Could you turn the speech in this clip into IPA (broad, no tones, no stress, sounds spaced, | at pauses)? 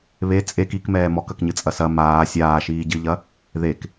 β e t͡sʼ e k i k m ɛː m ɔ k ɐ k ɲ ɨ t͡sʼ ɐ s ɐ m aː sʲ aː ʃ iː ɟ ɨ ʎ ɐ | ð e k